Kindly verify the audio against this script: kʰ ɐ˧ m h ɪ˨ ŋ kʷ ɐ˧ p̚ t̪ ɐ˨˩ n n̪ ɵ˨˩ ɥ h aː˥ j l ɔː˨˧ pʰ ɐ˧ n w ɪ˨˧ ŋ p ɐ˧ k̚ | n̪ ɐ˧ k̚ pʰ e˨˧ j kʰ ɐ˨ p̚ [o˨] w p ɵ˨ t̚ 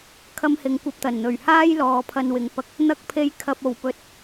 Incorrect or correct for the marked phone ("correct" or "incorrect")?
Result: incorrect